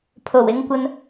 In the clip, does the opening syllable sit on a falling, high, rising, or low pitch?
low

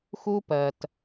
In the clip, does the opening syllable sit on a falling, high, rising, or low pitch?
high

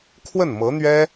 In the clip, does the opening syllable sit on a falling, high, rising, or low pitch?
falling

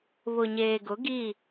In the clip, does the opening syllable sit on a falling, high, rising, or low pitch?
low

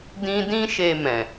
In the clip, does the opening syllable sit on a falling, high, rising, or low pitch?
high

